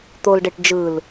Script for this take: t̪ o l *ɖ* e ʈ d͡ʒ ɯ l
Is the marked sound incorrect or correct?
correct